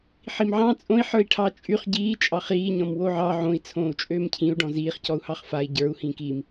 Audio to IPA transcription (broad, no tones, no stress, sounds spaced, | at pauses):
ħ i m ʕ ɑ̃ t͡sʼ õ i̯ ħ ə˞ i̯ ʈʰ ɑ t͡ʃʼ y χ ɟ iː t͡ʃʼ ɑ χ iː ɲ ɔ̃ m w o ʕ ɑ ʕ õ i̯ t͡sʰ õː u̯ t͡ʃʼ øː m cʰ ĩ u̯ ɖ ɔ̃ z iː χ c ɔ u̯ h ɑ χ f a i̯ ɟ ə˞ u̯ h ĩː k iː m